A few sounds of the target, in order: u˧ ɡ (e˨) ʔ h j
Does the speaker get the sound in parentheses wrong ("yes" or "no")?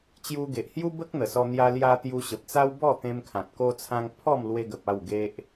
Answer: no